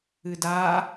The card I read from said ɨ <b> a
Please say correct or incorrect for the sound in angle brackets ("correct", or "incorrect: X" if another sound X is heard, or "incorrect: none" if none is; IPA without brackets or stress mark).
incorrect: d